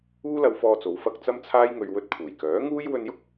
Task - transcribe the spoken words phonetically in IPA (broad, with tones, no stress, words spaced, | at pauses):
uː˥lɐ˧wfɔː˧t͡so˨˧w fɐ˥k̚ t͡sɐ˥mt͡sʰaː˥jŋɵ˧ɥ wɵ˧t̚pʰuː˨˩jkœː˨˥ ŋuː˥j wɵ˧njʊ˥k̚